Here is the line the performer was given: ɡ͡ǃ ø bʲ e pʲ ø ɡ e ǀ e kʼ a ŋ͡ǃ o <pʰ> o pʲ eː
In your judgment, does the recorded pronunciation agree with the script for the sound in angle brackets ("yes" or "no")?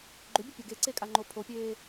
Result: yes